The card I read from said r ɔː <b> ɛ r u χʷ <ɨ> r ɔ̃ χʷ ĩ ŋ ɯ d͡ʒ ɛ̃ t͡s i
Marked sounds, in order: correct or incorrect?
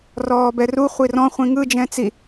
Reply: correct, incorrect: i

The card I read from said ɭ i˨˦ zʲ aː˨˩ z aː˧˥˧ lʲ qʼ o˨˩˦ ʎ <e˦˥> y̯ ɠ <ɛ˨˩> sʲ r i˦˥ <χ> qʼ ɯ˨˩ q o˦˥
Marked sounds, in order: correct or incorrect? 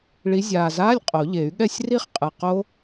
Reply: incorrect: e˨˩˦, incorrect: ɛ˥˩, correct

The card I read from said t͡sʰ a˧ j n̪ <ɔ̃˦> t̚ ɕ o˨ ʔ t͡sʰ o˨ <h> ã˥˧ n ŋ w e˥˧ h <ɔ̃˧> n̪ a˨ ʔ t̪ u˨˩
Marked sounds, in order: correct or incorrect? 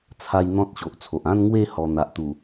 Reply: correct, incorrect: ʔ, incorrect: ɔ˧

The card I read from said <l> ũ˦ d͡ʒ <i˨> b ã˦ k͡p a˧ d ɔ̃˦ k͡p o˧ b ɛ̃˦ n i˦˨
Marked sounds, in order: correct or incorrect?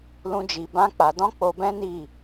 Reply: correct, incorrect: i˧

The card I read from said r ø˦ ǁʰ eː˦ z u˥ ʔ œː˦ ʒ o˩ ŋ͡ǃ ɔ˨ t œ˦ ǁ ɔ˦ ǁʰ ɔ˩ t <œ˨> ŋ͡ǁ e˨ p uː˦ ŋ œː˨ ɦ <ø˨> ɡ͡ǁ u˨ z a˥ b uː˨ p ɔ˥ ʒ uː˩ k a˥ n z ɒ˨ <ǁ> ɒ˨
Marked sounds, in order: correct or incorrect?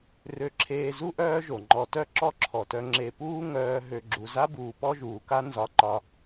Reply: correct, correct, incorrect: ǃ

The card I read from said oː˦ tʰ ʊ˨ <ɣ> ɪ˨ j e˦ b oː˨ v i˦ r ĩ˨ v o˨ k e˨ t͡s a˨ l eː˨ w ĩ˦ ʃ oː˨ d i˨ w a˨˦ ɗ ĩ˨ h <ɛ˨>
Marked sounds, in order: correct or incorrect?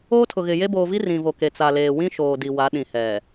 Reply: correct, correct

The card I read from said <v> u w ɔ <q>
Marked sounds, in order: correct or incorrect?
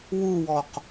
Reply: incorrect: w, correct

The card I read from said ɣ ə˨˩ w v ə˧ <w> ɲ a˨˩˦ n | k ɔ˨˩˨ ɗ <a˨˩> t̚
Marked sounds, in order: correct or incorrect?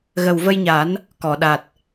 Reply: incorrect: j, correct

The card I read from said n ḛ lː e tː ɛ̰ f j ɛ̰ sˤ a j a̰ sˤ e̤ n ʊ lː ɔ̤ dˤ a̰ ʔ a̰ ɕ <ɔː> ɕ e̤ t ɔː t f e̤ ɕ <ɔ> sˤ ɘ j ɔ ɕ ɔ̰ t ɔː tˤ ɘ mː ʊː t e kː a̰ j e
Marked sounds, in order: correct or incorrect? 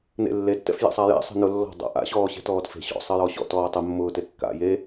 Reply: correct, incorrect: ɔ̰

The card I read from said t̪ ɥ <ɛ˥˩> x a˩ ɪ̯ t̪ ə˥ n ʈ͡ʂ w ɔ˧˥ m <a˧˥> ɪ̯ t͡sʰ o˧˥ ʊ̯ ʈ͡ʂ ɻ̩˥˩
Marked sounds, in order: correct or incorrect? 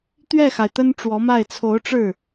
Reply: correct, incorrect: a˥˩

